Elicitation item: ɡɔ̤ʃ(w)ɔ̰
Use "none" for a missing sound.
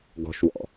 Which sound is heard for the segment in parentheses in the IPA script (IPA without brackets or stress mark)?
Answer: w